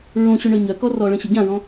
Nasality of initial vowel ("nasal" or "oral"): nasal